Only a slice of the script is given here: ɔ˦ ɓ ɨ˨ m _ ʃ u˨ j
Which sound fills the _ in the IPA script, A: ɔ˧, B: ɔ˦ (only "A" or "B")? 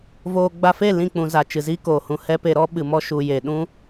B